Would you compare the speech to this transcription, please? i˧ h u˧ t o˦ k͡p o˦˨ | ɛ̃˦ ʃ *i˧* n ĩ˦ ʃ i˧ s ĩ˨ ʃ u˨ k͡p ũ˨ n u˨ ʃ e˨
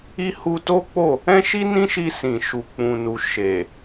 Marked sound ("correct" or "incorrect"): incorrect